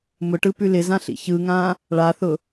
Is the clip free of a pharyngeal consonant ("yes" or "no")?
yes